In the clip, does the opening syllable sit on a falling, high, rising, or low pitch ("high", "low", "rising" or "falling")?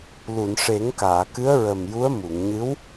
low